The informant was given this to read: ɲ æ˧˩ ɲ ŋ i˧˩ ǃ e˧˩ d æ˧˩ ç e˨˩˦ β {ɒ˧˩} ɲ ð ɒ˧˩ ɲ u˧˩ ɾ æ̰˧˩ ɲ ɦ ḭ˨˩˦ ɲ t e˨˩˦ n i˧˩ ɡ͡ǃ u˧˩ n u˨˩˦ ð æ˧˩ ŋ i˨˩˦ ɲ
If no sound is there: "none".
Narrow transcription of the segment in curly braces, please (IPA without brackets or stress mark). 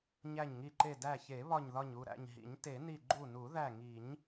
ɒ˧˩